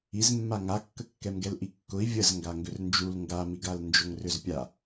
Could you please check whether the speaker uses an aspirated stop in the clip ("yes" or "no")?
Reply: no